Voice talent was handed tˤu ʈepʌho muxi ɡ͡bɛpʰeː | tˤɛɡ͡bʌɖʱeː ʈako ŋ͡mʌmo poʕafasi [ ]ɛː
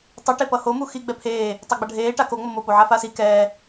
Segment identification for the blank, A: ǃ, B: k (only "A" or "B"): B